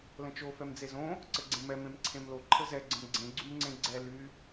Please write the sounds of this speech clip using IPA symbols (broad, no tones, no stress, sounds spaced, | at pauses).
l ə̃ t͡ʃ o f ɛ m d͡z e z õ | ǀ ə ɡ͡ǀ ẽ m ɛ m ẽ m ǀʰ ẽ m l o ǃʰ ə z ɛ ɡ͡ǀ ə̃ m ɡ͡ǀ ẽ ɡ͡ǀ y m ŋ͡ǀ ẽ ɡ͡ǀ ɛ l y